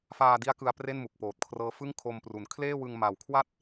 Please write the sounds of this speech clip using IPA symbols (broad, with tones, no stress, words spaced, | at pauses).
faː˧di˦˥a̯ kɯ˧a̯pre˥˩nmu˨˩k̚ poː˨˩t̚kʰrɤː˦˥fɯ˥˩ŋ kʰo˧mpru˩˦n kʰleː˥˩wɯ˧ŋ ma˨˩wkʰwa˥˩t̚